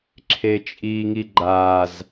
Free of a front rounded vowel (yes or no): yes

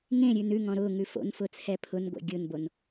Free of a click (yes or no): yes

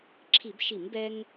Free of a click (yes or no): no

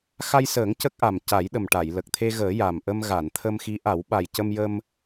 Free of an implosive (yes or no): no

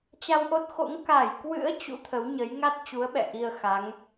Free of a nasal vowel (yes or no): yes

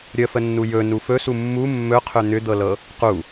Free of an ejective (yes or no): yes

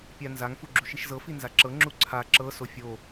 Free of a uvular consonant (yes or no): yes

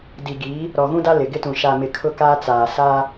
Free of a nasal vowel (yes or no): no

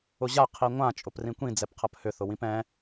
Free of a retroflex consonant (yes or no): yes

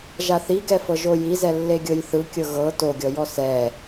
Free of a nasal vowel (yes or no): yes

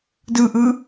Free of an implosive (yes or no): yes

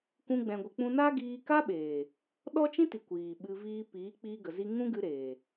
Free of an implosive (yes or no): no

